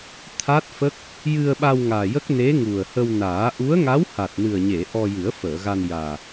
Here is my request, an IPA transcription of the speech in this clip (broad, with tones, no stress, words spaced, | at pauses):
t̪ʰa˦˥t̚fə˦˥k̚ | jɨ˧ə̯ɓa˧w ŋaː˨˩jə˦˥k̚ne˧˥ ŋu˨˩ə̯hə˧wnaː˨˩˦ ʔu˧˥ə̯ŋa˧˥w ha˨˩t̚nɨ˨˩ə̯ɲe˨˩˨ ʔɔ˧jɨ˨˩˦ə̯fəː˨˩˨ɣa˧n jaː˨˩